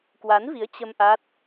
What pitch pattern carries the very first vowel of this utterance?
rising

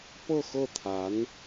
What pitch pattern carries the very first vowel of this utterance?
falling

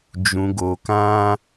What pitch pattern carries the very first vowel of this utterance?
low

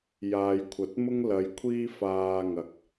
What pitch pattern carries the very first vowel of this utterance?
low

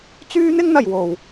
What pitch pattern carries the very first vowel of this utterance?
high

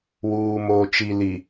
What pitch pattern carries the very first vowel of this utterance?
low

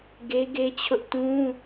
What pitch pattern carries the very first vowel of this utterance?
high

